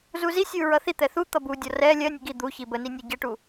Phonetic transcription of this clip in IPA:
zuzisʲu ɹʌθit̪ɛ θu t̪ʌbudʲɒ rɛ lʲɜnʲə ɡi d̪u çibəni nʲʌɟəʈu

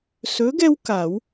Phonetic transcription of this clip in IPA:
sɵ˨˥ɡɛ˦w ka˨˩˦w

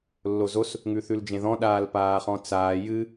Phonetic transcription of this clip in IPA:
lːozos | ŋʉθʉld͡ʒẽðɔ̃ ɗaːlpaːχɔ̃t͡saː jɨ

